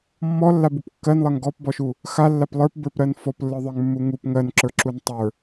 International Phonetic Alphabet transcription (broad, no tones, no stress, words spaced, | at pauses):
mːɔlːabup kːɜnlˠɜŋ ɡɔpbɔʃu | xalːap lˠə˞pbə˞pɾɜn fɔplːə˞ðˤə˞ŋmːu ŋup ŋɜnǁə˞ǁun tˤə˞